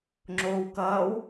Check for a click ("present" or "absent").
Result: present